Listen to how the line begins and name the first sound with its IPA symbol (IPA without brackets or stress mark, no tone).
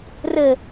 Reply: r